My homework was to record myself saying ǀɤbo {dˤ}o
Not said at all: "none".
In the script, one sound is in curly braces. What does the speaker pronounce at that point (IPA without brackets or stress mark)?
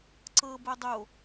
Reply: dˤ